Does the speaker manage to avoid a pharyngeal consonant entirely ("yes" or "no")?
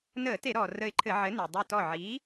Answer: no